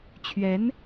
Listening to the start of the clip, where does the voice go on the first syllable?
rising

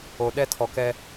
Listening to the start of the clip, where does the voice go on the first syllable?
low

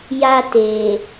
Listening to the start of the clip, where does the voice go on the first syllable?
high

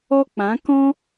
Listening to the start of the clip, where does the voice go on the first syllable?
high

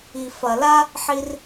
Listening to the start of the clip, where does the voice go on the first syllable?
low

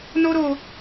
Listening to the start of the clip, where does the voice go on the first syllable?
high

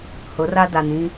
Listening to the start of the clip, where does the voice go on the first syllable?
rising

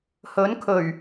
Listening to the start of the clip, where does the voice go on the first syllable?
rising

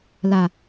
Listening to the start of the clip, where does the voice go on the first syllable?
low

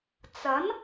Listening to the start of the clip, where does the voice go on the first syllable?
rising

